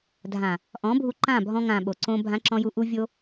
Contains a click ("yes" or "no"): yes